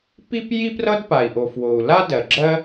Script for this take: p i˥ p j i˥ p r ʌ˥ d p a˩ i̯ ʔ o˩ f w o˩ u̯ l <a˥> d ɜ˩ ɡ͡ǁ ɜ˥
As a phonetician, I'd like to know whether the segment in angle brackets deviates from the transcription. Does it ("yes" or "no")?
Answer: no